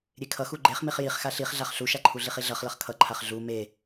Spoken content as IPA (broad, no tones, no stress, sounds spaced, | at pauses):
ɾʲ e kʰ ʌ x u ɡ͡ǃ e χ m i χ j i χ x a ɬ i χ ɮ a χ ɬ u ʃ a ǃʰ u ɮ i χ i ɮ ʌ χ l ʌ χ kʰ ʌ ǃʰ a χ ɮ u m e